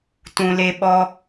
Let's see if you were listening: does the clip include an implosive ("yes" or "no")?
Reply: yes